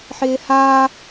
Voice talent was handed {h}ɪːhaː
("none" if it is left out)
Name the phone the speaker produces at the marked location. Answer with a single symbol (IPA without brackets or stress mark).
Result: ħ